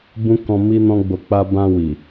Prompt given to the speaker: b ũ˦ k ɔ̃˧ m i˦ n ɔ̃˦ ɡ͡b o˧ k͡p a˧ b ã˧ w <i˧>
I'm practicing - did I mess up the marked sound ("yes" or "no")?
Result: yes